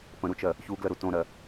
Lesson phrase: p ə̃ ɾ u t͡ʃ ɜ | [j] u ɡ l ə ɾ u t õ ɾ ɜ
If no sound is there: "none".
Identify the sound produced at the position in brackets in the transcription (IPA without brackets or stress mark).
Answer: ç